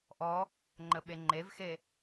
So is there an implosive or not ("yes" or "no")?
yes